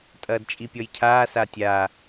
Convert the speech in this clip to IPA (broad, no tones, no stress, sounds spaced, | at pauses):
tʼ ɐː d t͡ʃʼ i pʲ ɔ j cʰ aː s a tʲ aː